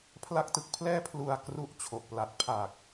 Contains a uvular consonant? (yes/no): no